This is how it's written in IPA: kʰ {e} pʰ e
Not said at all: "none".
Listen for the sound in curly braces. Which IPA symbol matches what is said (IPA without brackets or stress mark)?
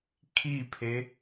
i